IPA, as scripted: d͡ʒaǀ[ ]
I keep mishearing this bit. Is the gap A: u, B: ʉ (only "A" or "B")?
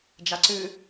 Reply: B